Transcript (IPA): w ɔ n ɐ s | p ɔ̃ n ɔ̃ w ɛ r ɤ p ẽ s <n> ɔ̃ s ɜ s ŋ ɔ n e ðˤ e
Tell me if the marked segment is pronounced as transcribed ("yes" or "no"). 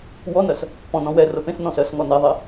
yes